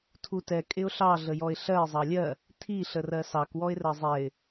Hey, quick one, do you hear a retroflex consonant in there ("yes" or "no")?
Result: no